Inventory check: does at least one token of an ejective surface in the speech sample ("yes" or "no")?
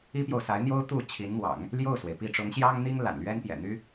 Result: no